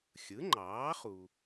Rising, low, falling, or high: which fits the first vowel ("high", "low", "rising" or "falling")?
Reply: rising